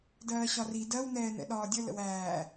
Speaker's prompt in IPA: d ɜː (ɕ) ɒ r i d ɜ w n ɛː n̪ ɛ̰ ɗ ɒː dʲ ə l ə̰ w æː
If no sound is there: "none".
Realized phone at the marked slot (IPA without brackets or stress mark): ɕ